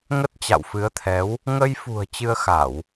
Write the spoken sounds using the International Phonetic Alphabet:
ŋ ə˦˥ t̚ t͡ɕ a̰˧˨ w f ɨ˨˦ ə̯ t̪ʰ ɛ˨˦ w | ŋ ə˧ j f ṳ˨˩ ə̯ t͡ɕ ɨ˧ ə̯ x a˧˩˨ w

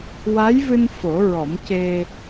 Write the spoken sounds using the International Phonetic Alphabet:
w a˧˥ j v ɨ˧ n f o˨˩˦ ɹ ɔ˨˩˦ m c e˧

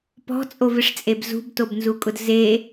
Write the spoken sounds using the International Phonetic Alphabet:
p ɔ̤ t͡sʼ o v ɪ ʂ t͡sʼ e b z ṳ b t o b n z u kʼ ʊ d z e

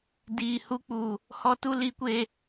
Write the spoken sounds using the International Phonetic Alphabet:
d iː˨ h u˦ k͡p u˨ | h ɔ˦ t u˦ l i˨ kʷ e˨

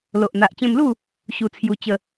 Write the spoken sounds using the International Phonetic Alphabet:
l o˨ ʔ n̪ a˨ ʔ t͡ɕ ẽ˧ m l u˥˧ | ɕ u˧ t͡sʰ j u˧ t͡ɕ ə˥˧

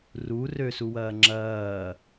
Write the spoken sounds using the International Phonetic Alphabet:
r u r ø s u w ɐː ŋ͡ǁ ɐː

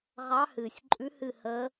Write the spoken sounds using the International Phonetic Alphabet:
ʁ ɑ˧˥ h ɨː˨˩ sʲ ǃʼ ʉ˧˥ h ɨ˥˧ h əː˧˥

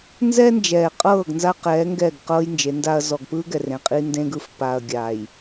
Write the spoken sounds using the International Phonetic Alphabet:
n z ɛː˦ n d͡ʒ ɛː˨ qʼ ɤː˦˨ ɡ n z a˦ q ɛː˨˦ ŋ ɡ ɛ˦˨ ɡ q ɤː˦ j n d͡ʒ e˨˦ n d a˦ ɐ̯ z ɔ˨ ɡ p ɯː˦ ɡ ɛ˨ r ẽ˨ qʼ i˦ n d ẽ˦ ɡ ɯ˨ f p a˨ ɐ̯ ɡʲ a˨ j

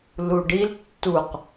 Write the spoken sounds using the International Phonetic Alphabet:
l u ɖ i l tː u q

